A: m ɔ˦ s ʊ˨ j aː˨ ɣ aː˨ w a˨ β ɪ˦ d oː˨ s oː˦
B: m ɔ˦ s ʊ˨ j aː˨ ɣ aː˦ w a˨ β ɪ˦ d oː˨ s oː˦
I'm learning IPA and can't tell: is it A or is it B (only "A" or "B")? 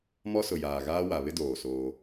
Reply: B